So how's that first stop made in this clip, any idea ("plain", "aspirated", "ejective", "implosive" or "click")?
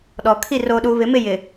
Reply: implosive